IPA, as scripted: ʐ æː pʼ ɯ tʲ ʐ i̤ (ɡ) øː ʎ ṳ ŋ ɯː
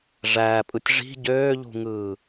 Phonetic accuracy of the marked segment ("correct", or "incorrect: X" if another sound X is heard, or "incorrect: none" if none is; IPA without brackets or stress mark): incorrect: ɟ